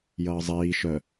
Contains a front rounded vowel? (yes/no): yes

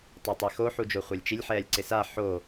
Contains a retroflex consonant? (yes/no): no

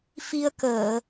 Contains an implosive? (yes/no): no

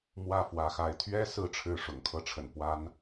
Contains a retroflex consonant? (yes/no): yes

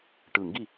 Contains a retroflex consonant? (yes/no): yes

